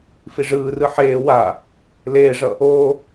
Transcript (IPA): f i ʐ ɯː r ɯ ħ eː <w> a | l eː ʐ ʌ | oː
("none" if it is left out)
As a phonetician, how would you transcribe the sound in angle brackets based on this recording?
w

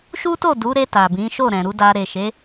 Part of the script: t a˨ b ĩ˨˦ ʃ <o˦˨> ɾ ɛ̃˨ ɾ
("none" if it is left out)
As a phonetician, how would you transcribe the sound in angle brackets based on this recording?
o˦˨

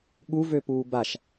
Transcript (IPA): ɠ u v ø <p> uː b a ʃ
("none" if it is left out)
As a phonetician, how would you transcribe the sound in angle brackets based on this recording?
p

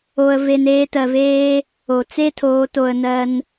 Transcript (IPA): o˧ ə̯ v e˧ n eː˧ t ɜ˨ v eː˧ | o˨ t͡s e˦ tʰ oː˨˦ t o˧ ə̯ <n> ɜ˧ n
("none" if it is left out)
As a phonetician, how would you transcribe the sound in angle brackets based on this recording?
n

